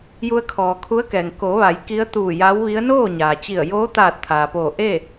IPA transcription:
ju˧ə̯kʰɔː˩kʰu˧˥ə̯kɛː˩ŋ ko˩˧ʋa˩˧j ki˧˥ə̯t̪uː˧˩ja˧˥wʋi˧˥ə̯ noː˥˨ ɲaː˩t͡ɕi˧˩ə̯ joː˧˥t̪aː˧˩t̚ t̪ʰaː˩poː˧˩ ʔe˥˨

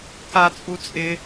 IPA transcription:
ka t͡sʼut͡sʼɪ

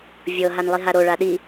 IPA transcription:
vʲɤ ɦanlˠiɦaɾo ɭaɗi

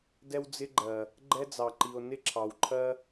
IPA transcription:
dɛ˦wd͡zɪ˦ ɡ͡ǃɜ˨ | ɡ͡ǃɛ˦d͡zɑ˨ǃi˨o̯ nɪ˦ǁʰɑ˨wǃʰɜ˦

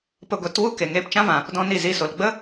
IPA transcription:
pə˧ɡʷɛ˨˦t wu˦ ke˨ŋeː˧pt͡ʃã˦vã˨ | dɔ̃˦ni˦˨zi˧so˨l ɡ͡bə˦

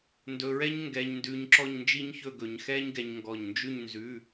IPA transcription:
ndɵ˧ɹɛ˥ɲ ŋɡɛ˧ɲndʉ˧ɲ ǁɔ˥˧ɲnd͡ʒi˥ɲçɵ˥˧ɡɵ˧ɲ xɛ˥ɲɡɛ˧ɲŋɡɔ˧˩ɲnd͡ʒʉ˥˧ɲ nzʉ˧˥˧

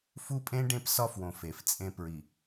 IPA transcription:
fu˦pʼẽ˦ ɖẽ˦psɒ˦fwõ˨ fe˨ft͡sʼẽ˦ pɹi˨

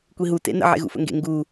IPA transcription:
kʷiɦu tḛnə̰ ʕḛɣṵfə̰ŋɡḛ ŋɡu

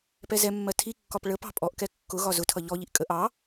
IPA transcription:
pɛzɛmːɜ tʰikːɒp ɭəpɑ̤ pʼɔʔkɛ kːʊ ɣɒzʊtʰʌ ʎɔʎiʔ kʼəʔ ɑ

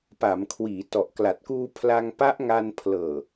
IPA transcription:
pa˩˦mkʰwiː˩˦ tɔ˨˩ʔkla˨˩t̚kuː˧ pʰla˧ŋpa˦˥ʔŋa˧n pʰlɤː˨˩

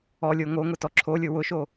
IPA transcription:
ɔlʲo ŋoŋʊ tɔǁʰolʲʊ wʊʃo

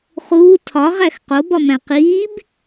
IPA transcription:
χuː tʰɒʁæx qobɒmæ̃ qiːb

